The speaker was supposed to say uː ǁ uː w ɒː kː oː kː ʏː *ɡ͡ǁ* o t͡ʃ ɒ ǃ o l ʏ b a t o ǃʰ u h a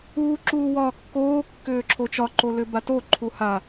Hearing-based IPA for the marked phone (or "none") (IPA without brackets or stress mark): ǁʰ